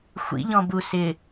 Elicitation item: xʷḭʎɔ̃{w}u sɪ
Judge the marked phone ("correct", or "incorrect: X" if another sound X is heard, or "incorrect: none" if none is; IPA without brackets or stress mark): incorrect: b